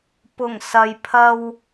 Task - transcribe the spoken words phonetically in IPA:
p ʊ˨˩ ŋ s ɐ˨ j pʰ ɐ˧ w

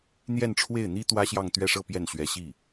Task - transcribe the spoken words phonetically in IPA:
n̪ j ɛ˥˧ n ʈ͡ʂʰ w e˥˩ ɪ̯ n̪ i˥ t̪ w ä˥ ɕ j ɑ˥˧ ŋ t̪ ɥ ɛ˥˧ ʂ ɤ˥˧ p j ɛ˥˩ n ɕ ɥ ɛ˧˥ ɕ i˥˩

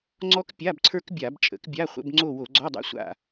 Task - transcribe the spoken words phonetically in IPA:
ŋ͡ǀ ɔ˦˥ k pʲ a˧˥˧ b ǀʰ ə˞˦˥ k bʲ a˧˩˧ b t͡ʃʼ ə̰˩˥ k bʲ a˧˥˧ χʷ ə̰˧˥˧ b ŋ͡ǀ o˦˨ w o˧˩˧ ɡ͡ǀ ɔ˧˥˧ dˤ a̰˦˥ sʷ a̰˦˨

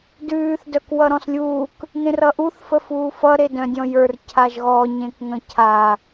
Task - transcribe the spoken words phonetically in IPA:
d ʉː θ d œ k w ʌ ɾ ɔ̃ s lʲ uː k | ŋ ẽ r ʌ ʔ u θ f ə f uː f ʌ ɾ e d œ̃ dʲ ɔ̃ j ə˞ r cʰ a ʒ ɣ ɔ ɲ ẽ k ŋ ə̃ cʰ a

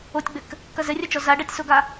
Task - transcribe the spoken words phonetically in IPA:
o tʲ ɡ͡b ɘ k | k ɐ z ɘ rʲ ɐ t͡ʃ ɔ z a ɖ a tʲ s o ɡ a

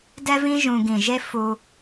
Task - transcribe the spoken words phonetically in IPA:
d ɛ˦ v ĩ˦ ʒ ũ˧ ɡ ĩ˨ ʒ e˦ f u˧

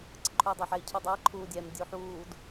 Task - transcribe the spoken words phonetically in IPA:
ǀ ə ǃʰ u i̯ dˤ ɛ ħ ɛ i̯ cʰ u dˤ æ ǃʰ uː dʲ ɛ m dʲ u ħ uː d

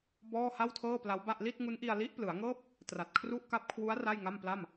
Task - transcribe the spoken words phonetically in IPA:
b ɔː˥˩ h a˥˩ w tʰ ɤː˥˩ p l a˦˥ w b a˥˩ ʔ l i˥˩ t̚ ŋ u˦˥ n ʔ i˧ a̯ l i˦˥ ʔ p l ɯ˩˦ a̯ ŋ ɤː˥˩ p̚ | t r a˨˩ t̚ kʰ r u˥˩ ʔ k a˦˥ p̚ kʰ w u˦˥ a̯ r a˥˩ j ŋ a˥˩ m p l a˥˩ m

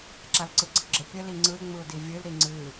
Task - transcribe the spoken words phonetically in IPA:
ǁ a l ǀ ɯ ɡ͡ǀ ə ɡ͡ǁ ɘ pʲ ə l i ŋ͡ǀ ɯ ɪ̯ ŋ͡m ɯ ʊ̯ d i vʲ ɨ l ɾ i ŋ͡ǀ ɨ

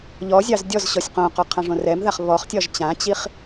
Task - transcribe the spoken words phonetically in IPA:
ʎ ɔ zʲ ɑ z dʲ ɔ z ɕ ɔ sʲ q õ q ɔ qʰ ã ʐ õ r ɛ m ð a χ β ɔ χ tʲ ɒ ʒ t͡ɕ ã t͡ɕ i χ

